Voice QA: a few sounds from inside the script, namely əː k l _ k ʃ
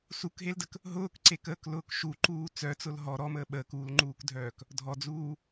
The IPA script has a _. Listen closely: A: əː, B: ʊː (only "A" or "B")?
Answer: B